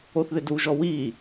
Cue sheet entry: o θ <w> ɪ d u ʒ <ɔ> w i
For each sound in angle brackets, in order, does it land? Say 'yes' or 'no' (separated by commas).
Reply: no, yes